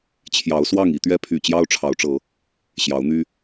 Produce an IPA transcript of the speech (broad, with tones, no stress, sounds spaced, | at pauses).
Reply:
t͡ɕʰ j ɑ˨˦ ʊ̯ s w ɑ˥˨ ŋ i˨˦ t̪ ɥ ɛ˦ pʰ y˨˩ t͡ɕ j ɑ˦ ʊ̯ ʈ͡ʂʰ ɑ˨˦ ʊ̯ ʈ͡ʂ ɤ˨˦ | ɕ j ɑ˨˦ ʊ̯ n̪ y˦